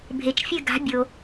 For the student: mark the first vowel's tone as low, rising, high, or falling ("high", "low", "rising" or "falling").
low